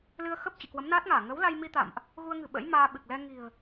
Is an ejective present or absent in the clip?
absent